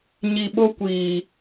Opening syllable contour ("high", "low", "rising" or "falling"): low